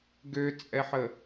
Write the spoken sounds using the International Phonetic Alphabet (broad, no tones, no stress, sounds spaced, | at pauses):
ɡ ø t͡sʼ ɛ ħ ə